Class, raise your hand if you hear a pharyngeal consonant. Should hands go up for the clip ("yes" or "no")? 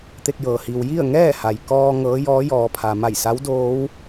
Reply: no